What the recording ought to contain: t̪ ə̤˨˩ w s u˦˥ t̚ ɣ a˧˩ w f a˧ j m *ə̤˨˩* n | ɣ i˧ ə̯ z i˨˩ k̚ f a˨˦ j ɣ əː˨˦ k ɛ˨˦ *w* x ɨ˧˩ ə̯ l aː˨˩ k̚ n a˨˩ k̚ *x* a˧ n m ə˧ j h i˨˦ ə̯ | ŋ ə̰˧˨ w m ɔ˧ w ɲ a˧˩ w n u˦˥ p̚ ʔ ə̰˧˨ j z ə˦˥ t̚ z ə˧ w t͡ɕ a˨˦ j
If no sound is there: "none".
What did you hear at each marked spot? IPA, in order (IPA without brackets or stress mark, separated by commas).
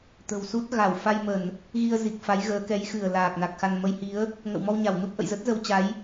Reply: ə˧˩˨, j, x